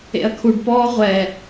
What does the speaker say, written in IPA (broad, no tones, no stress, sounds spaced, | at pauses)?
ḛ ɐ̯ kʰ u ɖ p ɔː ʁʷ ɛ